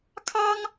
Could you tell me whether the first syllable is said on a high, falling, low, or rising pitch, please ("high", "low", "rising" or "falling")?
high